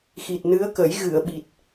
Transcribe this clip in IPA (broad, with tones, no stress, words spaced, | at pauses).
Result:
xi˨˩t̚nɨ˧˥ə̯kə˨˩˦j ɣɨ˨˩˨ə̯ɓi˨˩t̚